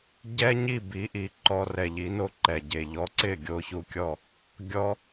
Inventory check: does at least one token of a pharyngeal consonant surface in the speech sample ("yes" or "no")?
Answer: no